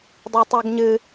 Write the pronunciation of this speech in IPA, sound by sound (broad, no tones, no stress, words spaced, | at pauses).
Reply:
dˤatˤaɡɲɨ